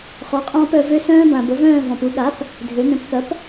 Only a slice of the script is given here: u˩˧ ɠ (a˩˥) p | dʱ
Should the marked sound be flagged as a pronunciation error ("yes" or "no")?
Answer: no